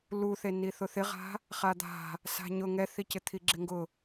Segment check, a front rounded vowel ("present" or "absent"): absent